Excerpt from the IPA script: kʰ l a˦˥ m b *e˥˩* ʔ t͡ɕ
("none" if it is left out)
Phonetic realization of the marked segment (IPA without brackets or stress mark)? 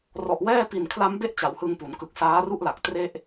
e˥˩